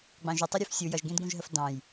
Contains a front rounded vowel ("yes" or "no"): no